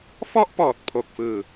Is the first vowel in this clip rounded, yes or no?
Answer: yes